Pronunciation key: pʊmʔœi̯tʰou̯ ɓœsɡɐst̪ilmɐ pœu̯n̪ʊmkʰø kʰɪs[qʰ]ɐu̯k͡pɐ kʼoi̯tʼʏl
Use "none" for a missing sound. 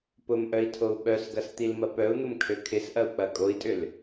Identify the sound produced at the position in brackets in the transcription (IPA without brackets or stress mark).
ʔ